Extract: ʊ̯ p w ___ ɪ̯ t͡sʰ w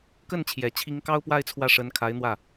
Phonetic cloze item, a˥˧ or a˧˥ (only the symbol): a˥˧